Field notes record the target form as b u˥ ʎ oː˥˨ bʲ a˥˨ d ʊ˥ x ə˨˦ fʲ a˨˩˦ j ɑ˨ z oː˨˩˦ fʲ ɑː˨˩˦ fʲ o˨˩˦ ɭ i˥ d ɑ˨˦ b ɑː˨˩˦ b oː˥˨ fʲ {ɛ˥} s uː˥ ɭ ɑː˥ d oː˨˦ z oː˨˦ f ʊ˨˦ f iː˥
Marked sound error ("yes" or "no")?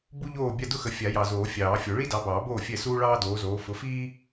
yes